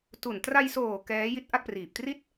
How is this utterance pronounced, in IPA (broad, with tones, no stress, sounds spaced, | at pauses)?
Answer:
t u˨˩ n t r a˧ j s oː˨˩ k ɛː˦˥ j i˦˥ t̚ ʔ a˥˩ k̚ p r iː˨˩ p̚ t r i˥˩ t̚